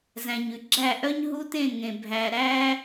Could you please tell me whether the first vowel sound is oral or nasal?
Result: nasal